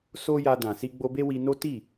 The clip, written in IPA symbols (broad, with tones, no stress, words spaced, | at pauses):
so˦ja˧dã˨ si˧ɡ͡bo˧be˦wi˧ no˦ ti˦˨